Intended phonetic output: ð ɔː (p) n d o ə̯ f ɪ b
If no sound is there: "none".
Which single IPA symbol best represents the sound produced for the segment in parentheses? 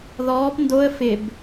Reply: p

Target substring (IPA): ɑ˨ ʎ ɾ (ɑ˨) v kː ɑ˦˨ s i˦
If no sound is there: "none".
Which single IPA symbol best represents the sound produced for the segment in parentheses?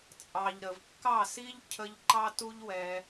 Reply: ə˨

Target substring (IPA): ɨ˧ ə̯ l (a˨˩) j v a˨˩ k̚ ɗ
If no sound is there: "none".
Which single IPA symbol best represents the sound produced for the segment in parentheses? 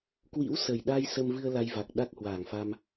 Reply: a˧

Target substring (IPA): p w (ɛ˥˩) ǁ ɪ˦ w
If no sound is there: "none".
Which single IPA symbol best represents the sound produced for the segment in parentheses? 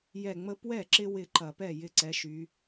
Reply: ɛ˥˩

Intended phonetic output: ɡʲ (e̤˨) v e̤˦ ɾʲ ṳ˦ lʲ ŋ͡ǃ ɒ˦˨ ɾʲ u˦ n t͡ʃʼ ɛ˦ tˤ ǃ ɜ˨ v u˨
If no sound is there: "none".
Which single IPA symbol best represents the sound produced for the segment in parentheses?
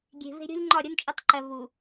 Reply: e̤˨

